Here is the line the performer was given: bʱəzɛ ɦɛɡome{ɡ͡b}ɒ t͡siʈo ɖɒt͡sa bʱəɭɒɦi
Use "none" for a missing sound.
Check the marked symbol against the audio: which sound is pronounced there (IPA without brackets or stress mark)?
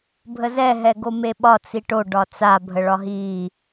ɓ